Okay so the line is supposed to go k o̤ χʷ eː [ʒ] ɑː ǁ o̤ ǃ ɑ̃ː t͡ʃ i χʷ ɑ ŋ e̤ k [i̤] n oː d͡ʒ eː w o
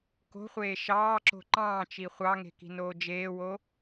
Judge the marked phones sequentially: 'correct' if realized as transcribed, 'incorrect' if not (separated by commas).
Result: incorrect, correct